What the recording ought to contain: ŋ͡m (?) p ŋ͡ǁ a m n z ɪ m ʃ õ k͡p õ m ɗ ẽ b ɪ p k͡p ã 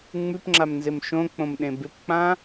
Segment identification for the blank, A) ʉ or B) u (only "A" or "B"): A